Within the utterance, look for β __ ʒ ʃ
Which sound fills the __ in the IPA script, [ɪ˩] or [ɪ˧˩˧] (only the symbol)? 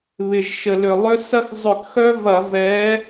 ɪ˩